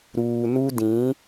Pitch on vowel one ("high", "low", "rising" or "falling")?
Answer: low